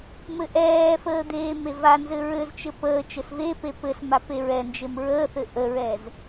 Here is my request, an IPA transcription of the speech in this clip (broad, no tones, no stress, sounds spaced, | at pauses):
m ɘ ʔ ɛː f əː d̪ eː m e v a n z ɘ ɹ ɘ z t͡ʃ ɘ p əː t͡ʃ ɘ s v e p e p ɘ s m a p e ɹ ɛ n d͡ʒ e m ɹ əː θ ɘ ʔ ə ɹ ɛː z